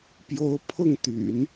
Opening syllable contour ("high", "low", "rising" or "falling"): rising